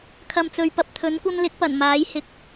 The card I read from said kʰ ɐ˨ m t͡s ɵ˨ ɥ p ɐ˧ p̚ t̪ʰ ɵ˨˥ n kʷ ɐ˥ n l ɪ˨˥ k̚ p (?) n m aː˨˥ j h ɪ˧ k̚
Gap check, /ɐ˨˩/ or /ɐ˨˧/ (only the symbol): ɐ˨˩